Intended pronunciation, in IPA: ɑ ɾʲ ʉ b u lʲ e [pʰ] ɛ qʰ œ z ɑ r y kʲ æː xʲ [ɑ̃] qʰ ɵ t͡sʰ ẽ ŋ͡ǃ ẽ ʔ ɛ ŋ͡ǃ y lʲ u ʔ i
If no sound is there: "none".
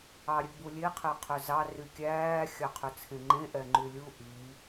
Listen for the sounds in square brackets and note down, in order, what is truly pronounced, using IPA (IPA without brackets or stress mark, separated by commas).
qʰ, ɑ